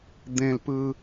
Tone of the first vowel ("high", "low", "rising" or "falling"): low